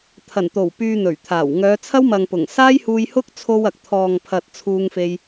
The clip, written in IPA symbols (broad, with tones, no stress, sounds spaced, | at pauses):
t̪ʰ ɐ˨˩ n t̪ o˨˩ w p yː˧ n̪ ɵ˨˩ ɥ t̪ʰ aː˨˩ w ŋ œː˨˧ t͡sʰ ɐ˥ w m ɐ˨ ŋ p ʊ˨˩ ŋ s aː˥ j h uː˧ j h ʊ˥ k̚ t͡sʰ o˧ w ɐ˨ k̚ t̪ʰ ɔː˨ ŋ pʰ ɐ˨ t̚ t͡sʰ uː˧ ŋ f e˧ j